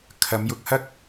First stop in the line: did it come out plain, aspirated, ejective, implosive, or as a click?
aspirated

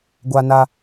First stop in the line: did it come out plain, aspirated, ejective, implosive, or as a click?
plain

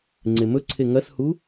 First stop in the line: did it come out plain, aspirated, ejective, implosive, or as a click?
click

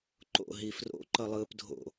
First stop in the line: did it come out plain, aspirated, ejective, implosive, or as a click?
click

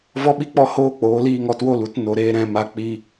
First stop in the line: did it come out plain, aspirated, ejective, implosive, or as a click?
implosive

